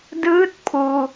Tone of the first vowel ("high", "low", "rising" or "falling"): rising